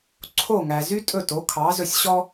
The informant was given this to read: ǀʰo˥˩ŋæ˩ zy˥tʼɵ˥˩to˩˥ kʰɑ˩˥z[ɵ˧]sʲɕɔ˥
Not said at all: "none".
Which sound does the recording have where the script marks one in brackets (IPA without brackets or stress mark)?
ɵ˧